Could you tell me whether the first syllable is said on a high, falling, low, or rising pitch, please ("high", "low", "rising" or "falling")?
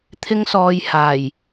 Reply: high